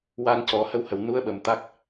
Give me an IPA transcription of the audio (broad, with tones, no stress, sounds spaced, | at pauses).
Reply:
w a˧ n c ɔ˨˩˦ h ə˧ w h ə˨˩ w n u˧˥ ə̯ ɓ ə˨˩ m t̪ a˦˥ k̚